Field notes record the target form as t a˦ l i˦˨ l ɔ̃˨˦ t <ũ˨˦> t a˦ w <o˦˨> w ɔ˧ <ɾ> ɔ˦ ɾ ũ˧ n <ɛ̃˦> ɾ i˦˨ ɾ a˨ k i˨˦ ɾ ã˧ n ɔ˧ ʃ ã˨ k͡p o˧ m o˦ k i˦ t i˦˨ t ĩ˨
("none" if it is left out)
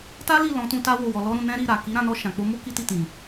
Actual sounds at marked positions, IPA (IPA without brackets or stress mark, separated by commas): ũ˧, o˦˨, l, ɛ̃˦